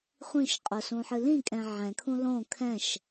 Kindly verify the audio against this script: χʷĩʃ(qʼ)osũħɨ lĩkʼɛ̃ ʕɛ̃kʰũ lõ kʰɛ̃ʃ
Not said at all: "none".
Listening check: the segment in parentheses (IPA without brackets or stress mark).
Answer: qʼ